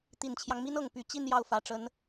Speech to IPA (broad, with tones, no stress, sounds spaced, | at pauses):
t̪ i˨˩ n t͡ɕʰ j ɑ˦ ŋ m i˥ n ɤ˨˩ ŋ p y˧˥ t͡ɕ i˥˧ n j ɑ˥˩ ʊ̯ f ä˨˩ ʈ͡ʂ ə˧˥ n